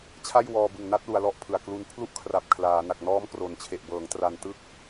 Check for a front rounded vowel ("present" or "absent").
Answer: absent